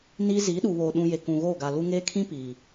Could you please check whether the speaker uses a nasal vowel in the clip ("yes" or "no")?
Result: yes